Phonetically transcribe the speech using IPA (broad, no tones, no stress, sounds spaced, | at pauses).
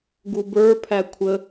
ɡ u b ə˞ pʰ æ kʷʰ ə